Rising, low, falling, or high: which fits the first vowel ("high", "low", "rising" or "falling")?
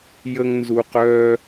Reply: high